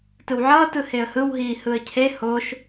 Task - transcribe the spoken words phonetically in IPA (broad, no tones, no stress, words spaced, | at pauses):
tɯwʕʌː tɯheə̯hɯw ɦiːhɯə̯cʰe hoʃ